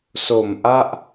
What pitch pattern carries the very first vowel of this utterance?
low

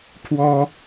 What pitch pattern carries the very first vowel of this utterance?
high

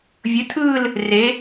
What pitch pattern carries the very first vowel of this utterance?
rising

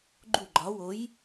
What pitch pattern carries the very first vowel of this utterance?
falling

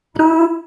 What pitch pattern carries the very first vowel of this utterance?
high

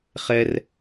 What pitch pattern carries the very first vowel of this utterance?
high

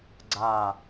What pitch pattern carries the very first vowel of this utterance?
low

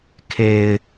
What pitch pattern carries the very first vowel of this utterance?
low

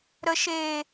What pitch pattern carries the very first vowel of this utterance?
low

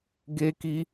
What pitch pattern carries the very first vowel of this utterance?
high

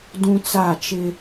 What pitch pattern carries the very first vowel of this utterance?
high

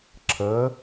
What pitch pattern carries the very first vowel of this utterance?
rising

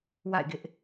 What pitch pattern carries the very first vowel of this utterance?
falling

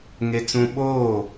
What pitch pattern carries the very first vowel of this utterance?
high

